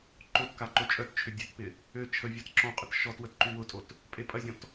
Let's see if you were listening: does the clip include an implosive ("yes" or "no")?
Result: no